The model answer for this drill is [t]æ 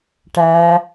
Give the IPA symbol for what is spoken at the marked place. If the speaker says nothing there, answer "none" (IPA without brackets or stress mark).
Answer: ʈ